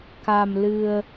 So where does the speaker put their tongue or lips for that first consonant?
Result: velum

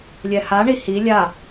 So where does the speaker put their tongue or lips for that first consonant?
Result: tongue tip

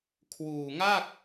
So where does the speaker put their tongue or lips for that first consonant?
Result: velum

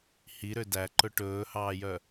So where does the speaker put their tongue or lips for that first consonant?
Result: throat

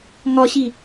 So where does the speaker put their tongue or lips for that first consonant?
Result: velum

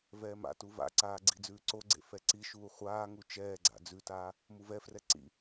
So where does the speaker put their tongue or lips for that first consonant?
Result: lips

